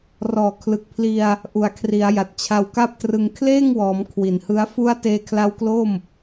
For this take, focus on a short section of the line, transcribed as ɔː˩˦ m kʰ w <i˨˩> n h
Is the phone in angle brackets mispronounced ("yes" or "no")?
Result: no